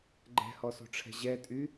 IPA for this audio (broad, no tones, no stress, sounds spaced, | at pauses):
ɡ͡ǃ ɛ̤ h ɔ s o̤ ʈ͡ʂʰ ɛ̤ ʑ ɛ tʼ y